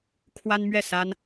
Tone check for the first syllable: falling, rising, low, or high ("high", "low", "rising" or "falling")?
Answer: high